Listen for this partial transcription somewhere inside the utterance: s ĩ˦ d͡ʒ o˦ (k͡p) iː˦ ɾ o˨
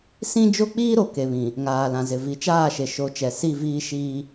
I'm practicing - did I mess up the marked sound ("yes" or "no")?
no